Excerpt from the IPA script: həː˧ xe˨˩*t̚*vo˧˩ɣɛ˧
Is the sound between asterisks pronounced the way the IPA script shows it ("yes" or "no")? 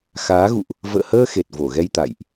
yes